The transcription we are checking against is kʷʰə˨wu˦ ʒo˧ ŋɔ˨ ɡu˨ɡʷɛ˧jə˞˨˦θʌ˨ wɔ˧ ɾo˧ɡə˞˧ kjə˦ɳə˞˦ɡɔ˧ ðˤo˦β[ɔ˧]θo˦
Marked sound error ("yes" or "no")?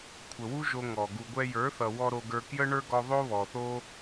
yes